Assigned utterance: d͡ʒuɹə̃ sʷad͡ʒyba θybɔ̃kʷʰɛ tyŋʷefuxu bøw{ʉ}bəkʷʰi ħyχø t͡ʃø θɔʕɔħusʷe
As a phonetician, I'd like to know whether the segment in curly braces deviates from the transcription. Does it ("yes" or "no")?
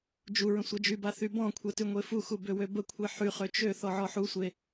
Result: yes